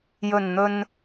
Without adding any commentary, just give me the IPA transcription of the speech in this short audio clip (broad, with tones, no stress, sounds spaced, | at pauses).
j ɵ˨˩ n n̪ ɵ˨ n